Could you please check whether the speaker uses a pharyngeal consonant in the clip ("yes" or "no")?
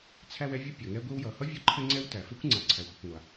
no